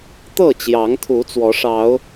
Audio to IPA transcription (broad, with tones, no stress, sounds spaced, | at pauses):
t̪ ɤ˥˨ t͡ɕ j ɑ˨˦ ŋ t̪ʰ u˨˦ t͡s w ɔ˨˦ ʂ ɑ˨˦ ʊ̯